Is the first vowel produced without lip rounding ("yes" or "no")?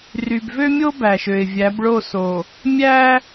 no